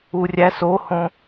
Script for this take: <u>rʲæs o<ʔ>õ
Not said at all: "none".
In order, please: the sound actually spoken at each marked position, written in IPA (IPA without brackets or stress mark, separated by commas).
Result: u, h